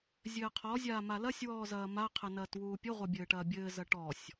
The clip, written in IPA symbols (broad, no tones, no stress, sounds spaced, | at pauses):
zʲ ɘː qʰ ɔ zʲ aː m a l ɐ sʲ w ɔː z ɐː m a qʰ ɘ n ɐː t w uː pʲ ɘ ʁʷ ɐ bʲ ɘː ʈ ɐː bʲ ɘː z ɐ ʈ ɔ sʲ